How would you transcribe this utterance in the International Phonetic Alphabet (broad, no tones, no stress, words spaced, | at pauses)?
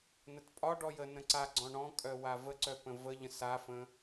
nətpʼɒɖɔ jənə̃ ǀaɡ͡ǀɔ̃ ɳɔ̃kʼœ wavəǀœ pə̃vəʎə̃ safə̃